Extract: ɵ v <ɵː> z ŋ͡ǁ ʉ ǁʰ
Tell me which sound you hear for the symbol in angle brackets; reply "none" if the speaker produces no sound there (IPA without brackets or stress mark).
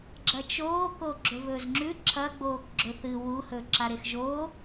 ɵː